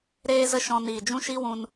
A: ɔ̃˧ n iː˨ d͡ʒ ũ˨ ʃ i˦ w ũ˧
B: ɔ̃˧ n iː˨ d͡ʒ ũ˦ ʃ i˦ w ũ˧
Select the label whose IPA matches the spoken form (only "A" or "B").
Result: B